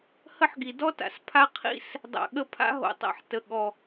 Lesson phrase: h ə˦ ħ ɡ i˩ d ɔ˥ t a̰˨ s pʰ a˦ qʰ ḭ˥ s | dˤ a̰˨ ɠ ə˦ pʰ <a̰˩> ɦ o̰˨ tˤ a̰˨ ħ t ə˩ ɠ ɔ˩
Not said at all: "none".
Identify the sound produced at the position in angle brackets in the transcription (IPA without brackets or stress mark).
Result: a̰˥